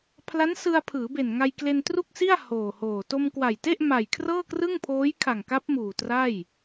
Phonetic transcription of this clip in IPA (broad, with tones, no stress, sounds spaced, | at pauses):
pʰ l a˦˥ n s ɯ˧ a̯ pʰ ɯː˩˦ b e˨˩ n ŋ a˧ j k l e˧ n t r u˥˩ k̚ s i˥˩ a̯ h oː˨˩ h oː˨˩ t o˧ m k w a˨˩ j t e˥˩ ʔ m a˨˩ j kʰ r ɤː˥˩ k r ɯ˥˩ ŋ pʰ oː˦˥ j kʰ a˨˩ ŋ k a˦˥ p̚ m uː˨˩ t r a˥˩ j